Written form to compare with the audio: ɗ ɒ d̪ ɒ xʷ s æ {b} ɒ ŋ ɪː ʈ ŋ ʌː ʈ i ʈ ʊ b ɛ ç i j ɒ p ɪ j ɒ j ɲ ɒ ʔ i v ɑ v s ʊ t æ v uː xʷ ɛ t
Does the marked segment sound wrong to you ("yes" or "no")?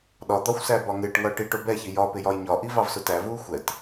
no